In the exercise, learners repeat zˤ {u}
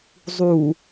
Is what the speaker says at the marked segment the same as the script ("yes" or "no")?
yes